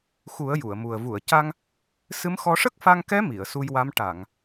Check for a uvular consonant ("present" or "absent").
absent